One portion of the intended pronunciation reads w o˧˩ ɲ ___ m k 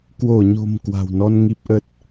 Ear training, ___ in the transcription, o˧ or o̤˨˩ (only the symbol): o̤˨˩